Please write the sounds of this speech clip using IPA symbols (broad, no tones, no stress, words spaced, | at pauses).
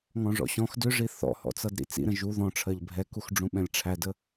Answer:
ŋɔ̃ʐɔ̰ɕɔ̃x dʏʐi θɔ̰hɔ̰t͡sʌd ɾḭt͡sḭɾə̃ ʒu ðɔ̃ʈ͡ʂʰɜʎ bʱɛkuxɖ͡ʐũ ɓɛ̃lʲʈ͡ʂʰædə